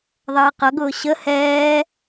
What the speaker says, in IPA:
ðˤ ʌː q ʌ ɡ ʊː ɕ ə h ɛː

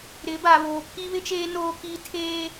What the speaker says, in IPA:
ɾ ɪ˨˦ b a˨ β oː˨ pʰ i˦ β ɪ˦ t͡ʃ eː˦ n oː˦ k iː˦ tʰ eː˦

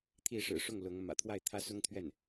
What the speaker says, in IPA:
t̪ʰ i˥˩ ʂ ɻ̩˨˩ ʂ ʊ˥˩ ŋ l ʊ˧˥ ŋ m ä̰˨˩ t̪ʰ w a˥˩ ɪ̯ t̪ʰ ä˥ s ʊ˥ ŋ t̪ʰ ɥ ɛ˥˩ n

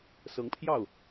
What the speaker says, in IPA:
s ɤ˧˥ ŋ pʰ j ɑ˥˩ ʊ̯

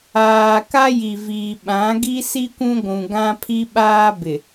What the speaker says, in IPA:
aː˨ k a˦ j i˨ v iː˨ ɓ ã˨˦ ɡ i˦ s i˦ kʷ ũ˦ ɡʷ ũ˨ ɡ ã˦ pʰ i˦ ɓ aː˦ b ɪ˨

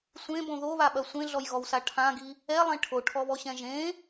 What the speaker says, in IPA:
sʷ ẽ b õ ð o β a ɓ ɐ sʷ ẽ ɮ ɔ j ɣ ɔ w s a ʈʰ ã ɡ i | ɛ lˠ ẽ ʈʰ o ʈʰ ɔ β ɔ ɕ ɛ̃ ʒ ẽ

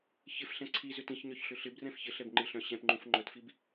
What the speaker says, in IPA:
ç ɪ f ɬ ɛ̃ ǀʰ i z ʏ t ĩ ç ɲ œ ç ɬ ʏ ɬ ɪ b r ɛ̃ f ç ɪ ɬ ɛ b ŋ͡ǃ ɪ ɬ œ̃ ɕ ɛ̃ p ŋ͡ǃ ũ f ŋ͡ǃ œ t f i b

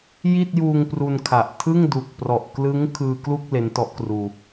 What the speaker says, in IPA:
j i˥˩ t̚ j uː˧ ŋ p r u˧ n kʰ a˨˩ ʔ tʰ ɯ˥˩ ŋ d u˨˩ k̚ p r ɔ˨˩ ʔ k l ɯ˦˥ ŋ kʰ ɯː˧ k l u˥˩ k̚ l e˦˥ n t ɔ˦˥ ʔ k r uː˧

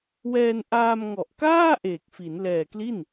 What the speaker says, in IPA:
w ɛː˧ n ʔ aː˧ m ŋ ɔ˨˩ ʔ k aː˥˩ ʔ eː˨˩ k̚ f i˩˦ n l ɛː˨˩ k l i˥˩ n

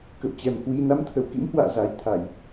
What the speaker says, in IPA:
k ə̰˧˨ w t͡ɕ ɛ˨˩ m h w i˧ n a˨˦ m t̪ʰ ə˧˩ w k ḭ˧˥ m h w a̰ː˧˨ z a˨˩ j t̪ʰ a˧˩˨ j

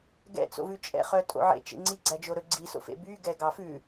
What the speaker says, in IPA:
ɡ ɛ̰ t͡s o̰ v ʉ t͡ʃʼ ɛ̰ χ œ tʼ o̰ ʕ ḛ t͡ʃ ḛ ŋ͡ǀ i ɡ͡ǀ æ d͡ʒ o ɾ ɵ ɡ͡ǀ i s o̰ f ḛ b y ɡ ɛ ɡ ɑ f ʉ

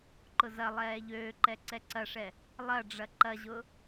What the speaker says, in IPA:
ǃ ʊ z ɐ lˠ ɛː ʎ øː ǃ ɛ ǀ ɛ ǀ ɐ ʂ ɛ | lˠ ɐ ɖ͡ʐ ɐ ǃ ɐ ʑ ʊ

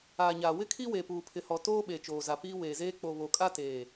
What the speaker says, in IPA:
aː˨ ɲ aː˨ w ɪ˦ kʰ i˦ w e˨ p uː˨ pʰ ɪ˨ h ɔ˨ t oː˦ ɓ e˨ t͡ʃ oː˨ z a˨ p iː˦ w eː˨ z eː˦ k͡p o˨ β o˨ kʼ a˦ t eː˨

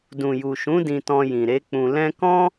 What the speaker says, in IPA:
d ũ˨ j u˨ ʃ ũ˨˦ d ĩ˧ t ɔ̃˧ j ĩ˨ ɾ e˨˦ k͡p ũ˧ l ɛ̃˦ k ɔ̃˦

